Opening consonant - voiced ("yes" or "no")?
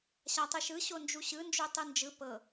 no